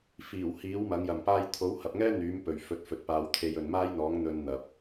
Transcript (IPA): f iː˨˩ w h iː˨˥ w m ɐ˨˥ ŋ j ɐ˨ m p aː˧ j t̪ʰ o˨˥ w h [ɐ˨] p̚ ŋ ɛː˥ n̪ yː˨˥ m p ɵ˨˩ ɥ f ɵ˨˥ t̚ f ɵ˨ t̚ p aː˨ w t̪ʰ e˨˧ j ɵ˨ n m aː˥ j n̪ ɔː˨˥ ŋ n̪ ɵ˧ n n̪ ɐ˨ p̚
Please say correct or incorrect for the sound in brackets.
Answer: correct